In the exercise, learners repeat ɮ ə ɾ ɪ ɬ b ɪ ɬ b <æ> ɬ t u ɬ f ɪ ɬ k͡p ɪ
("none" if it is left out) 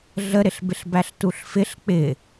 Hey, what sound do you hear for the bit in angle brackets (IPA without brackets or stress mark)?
æ